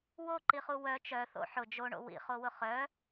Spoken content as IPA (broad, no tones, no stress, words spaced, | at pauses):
woǃiχu wœ t͡ʃœθo̰ ħʊ d͡ʒoɳo̰ wḭχowʊ χœ